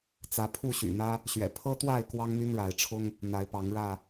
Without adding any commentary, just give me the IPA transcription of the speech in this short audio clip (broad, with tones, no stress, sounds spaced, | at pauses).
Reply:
t͡s ä˨˦ pʰ u˥˨ ɕ y̰˨˩ n̪ ä˦ | ɕ ɥ ɛ̰˨˩ pʰ ɤ˦ t̪ w a˥˨ ɪ̯ k w ɑ˦ ŋ n̪ y˦ n ɻ a˨˦ ɪ̯ ʈ͡ʂʰ ʊ˦ ŋ | n̪ a˨˦ ɪ̯ p ɑ˨˦ ŋ ɻ ä˥˨